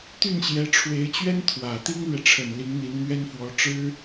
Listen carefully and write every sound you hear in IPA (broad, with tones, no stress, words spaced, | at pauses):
t̪y˥˩nɕjɛ˧˥ʈ͡ʂʰwe˧˥ɪ̯t͡ɕɥɛ˥n t̪ʰwä˨˩ t̪i˥ŋlɥɛ˨ʈ͡ʂʰə˨˩n li˧˥ŋn̪i˧˥nn̪ɥɛ˥nfwɔ˧˥ ʈ͡ʂɻ̩˥